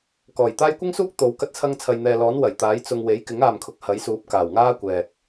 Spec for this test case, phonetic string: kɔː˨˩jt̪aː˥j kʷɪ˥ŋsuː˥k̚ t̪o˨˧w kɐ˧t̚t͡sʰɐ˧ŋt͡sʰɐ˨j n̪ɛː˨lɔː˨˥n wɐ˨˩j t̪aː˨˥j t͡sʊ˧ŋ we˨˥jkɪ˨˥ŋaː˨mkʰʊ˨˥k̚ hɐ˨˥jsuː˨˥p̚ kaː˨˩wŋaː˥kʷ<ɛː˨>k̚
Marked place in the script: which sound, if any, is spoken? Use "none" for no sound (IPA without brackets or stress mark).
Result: ɛː˨